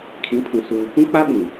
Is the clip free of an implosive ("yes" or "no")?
no